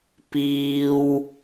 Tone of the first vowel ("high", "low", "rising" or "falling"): high